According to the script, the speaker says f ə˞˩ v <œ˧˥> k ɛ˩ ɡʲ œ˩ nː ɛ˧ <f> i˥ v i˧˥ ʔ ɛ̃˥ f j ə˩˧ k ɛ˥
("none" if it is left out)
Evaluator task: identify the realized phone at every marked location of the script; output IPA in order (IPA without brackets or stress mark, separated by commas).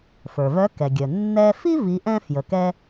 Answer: œ˧˥, f